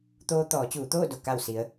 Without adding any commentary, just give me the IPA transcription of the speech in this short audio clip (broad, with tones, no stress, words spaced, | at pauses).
t̪oː˧ t̪ɔː˩˧t͡ɕuː˩˧t̪oː˥˨do˧˩ ka˧˩wsi˩˧ə̯